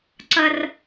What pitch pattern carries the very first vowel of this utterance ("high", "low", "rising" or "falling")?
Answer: high